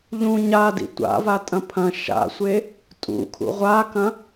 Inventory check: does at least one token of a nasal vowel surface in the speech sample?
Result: yes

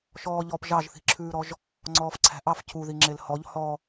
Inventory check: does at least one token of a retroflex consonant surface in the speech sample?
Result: no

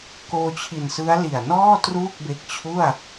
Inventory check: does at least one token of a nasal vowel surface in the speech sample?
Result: no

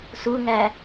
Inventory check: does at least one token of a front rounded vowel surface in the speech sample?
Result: no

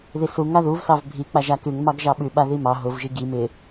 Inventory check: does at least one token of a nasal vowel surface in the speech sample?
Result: no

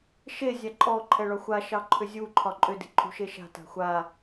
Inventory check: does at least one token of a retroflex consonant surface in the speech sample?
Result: yes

